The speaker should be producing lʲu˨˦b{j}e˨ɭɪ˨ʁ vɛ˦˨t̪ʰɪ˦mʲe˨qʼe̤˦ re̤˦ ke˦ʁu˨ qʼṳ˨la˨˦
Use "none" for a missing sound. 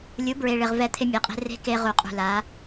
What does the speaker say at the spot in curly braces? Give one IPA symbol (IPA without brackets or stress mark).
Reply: ɹ